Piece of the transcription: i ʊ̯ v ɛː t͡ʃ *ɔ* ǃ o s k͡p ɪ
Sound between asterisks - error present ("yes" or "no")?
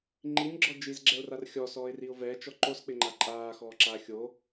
no